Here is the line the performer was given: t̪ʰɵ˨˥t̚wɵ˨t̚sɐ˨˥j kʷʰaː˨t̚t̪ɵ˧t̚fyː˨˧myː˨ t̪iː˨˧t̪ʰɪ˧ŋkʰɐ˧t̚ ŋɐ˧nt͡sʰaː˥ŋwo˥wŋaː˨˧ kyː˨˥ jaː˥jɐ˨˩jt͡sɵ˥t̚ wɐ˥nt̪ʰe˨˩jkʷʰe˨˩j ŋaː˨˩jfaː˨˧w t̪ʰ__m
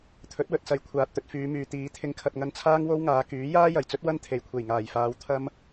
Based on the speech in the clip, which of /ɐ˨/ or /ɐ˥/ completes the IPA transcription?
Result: ɐ˥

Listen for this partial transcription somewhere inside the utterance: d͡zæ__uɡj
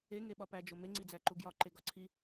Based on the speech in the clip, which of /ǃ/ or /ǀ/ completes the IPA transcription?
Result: ǃ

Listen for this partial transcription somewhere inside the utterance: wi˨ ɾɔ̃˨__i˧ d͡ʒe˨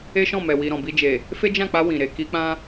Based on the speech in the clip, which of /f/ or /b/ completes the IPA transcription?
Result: b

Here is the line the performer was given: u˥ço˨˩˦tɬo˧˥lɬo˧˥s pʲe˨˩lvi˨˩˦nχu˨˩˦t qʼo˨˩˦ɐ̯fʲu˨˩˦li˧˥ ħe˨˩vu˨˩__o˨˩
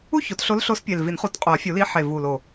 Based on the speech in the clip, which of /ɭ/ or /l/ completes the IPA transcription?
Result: l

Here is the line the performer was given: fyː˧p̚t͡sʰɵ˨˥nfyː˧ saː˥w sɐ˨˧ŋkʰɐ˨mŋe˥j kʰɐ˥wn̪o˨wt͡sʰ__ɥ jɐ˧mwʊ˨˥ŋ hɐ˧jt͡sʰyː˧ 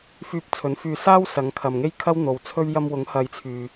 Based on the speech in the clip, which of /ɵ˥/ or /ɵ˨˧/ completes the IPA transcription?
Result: ɵ˥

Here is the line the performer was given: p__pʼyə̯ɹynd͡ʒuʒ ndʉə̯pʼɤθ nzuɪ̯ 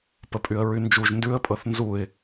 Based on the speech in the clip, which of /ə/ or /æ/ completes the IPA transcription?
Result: ə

